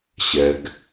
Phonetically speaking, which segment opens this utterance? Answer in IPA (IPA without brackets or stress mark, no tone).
ɕ